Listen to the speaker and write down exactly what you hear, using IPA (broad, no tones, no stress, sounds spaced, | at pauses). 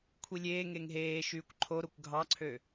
kʷʰ i lʲ eː ŋ e ŋ ɦ eː ʃ yː kʷ ǃʰ o ɾ o kʷ ɡʱ ɑ ǀʰ ø